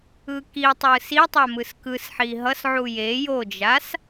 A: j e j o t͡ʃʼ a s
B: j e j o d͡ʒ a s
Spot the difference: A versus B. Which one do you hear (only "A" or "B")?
B